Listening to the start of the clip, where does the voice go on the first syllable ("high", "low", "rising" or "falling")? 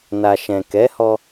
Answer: low